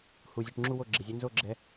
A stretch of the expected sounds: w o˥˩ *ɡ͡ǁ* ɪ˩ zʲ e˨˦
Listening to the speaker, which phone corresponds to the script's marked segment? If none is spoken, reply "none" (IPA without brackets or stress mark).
ɡ͡ǁ